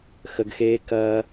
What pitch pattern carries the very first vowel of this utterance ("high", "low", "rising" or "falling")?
low